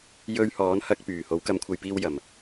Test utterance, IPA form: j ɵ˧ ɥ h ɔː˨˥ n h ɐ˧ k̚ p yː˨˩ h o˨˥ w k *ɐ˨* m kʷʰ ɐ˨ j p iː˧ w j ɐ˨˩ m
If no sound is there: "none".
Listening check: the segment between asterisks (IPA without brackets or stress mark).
ɐ˨˥